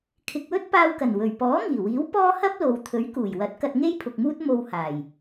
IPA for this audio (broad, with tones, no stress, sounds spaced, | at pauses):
kʰ ɪ˨ k̚ w ɵ˥ t̚ p aː˧ w k ɐ˨˩ n w ɵ˨˩ ɥ p ɔː˨˥ ŋ iː˨˩ w iː˨˥ w p ɔː˥ h ɐ˥ p̚ l o˨ w t̪ʰ ɵ˨˥ ɥ k uː˨˩ j w ɐ˨˥ t̚ k ɐ˧ t̚ ŋ e˥ j pʰ ʊ˨ k̚ m uː˥ t̚ m o˧ w h aː˨˩ j